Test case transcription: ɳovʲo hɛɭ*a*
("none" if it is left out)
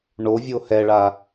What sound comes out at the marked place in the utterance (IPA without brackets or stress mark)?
a